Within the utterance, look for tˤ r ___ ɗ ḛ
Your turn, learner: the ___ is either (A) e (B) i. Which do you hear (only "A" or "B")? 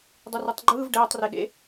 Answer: A